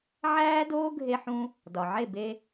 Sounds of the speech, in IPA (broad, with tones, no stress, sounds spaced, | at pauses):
ʕ æː˦ d oː˦ ɡʱ e˦ ħ ũ˦ | d ɒ˨ ʕ e˦˨ b e˧